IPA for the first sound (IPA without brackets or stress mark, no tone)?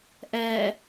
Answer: ʔ